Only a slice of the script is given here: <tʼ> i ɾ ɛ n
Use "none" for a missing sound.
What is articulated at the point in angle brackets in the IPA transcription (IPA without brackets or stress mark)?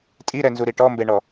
tʼ